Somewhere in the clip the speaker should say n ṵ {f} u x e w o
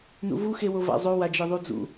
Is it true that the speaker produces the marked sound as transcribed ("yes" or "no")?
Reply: no